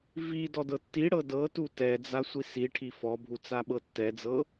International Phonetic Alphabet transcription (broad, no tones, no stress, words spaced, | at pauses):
vi dɔdɤtːiɽɤ dɤtu tɛd͡za sʷisiʈʰi fɔbʱu t͡saɓɤtːɛd͡zɤ